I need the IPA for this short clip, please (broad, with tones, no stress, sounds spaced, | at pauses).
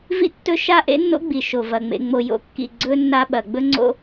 v ḭ˦ tː ɵ˦ ʃ a˦ ʔ ḛ˦ nː o̰˦ ɡ͡b i˨ ʃ o˨ v ɐ˨ ŋ͡m ḛ˧ ŋ͡m o˧ j o̰˦ kː ḭ˦˨ ɡ͡ǀ ɵ˦ nː a˦ ɓ ɐ˨ ɡ͡b ɵ˦ ŋ͡ǀ o̰˦